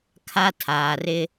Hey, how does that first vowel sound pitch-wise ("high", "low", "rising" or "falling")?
high